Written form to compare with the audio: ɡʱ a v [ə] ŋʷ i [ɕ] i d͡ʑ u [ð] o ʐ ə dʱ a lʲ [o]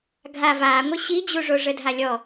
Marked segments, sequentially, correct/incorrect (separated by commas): incorrect, correct, incorrect, incorrect